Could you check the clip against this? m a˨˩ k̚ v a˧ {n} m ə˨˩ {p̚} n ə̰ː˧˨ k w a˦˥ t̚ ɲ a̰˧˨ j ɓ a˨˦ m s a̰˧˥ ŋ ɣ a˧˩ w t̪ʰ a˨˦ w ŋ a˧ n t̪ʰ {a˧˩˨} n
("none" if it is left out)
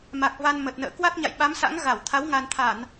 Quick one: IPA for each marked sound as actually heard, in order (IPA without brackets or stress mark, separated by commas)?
n, t̚, a˧˩˨